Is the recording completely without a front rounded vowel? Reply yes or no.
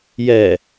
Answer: yes